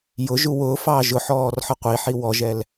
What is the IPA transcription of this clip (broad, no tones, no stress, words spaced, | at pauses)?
jʊ ʒuwʊːfɑː ʒʊħɔːr ħʌqʷiħi wɔʒɛl